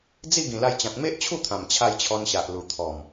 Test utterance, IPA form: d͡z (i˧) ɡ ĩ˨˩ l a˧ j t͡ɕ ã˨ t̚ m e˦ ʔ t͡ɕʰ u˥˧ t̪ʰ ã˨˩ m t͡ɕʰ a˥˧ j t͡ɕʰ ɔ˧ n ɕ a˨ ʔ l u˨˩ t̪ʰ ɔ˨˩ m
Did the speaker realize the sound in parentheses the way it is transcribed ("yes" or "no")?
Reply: no